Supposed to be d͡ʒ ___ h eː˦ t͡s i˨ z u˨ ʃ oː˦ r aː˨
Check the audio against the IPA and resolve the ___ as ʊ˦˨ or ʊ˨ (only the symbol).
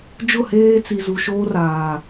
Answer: ʊ˦˨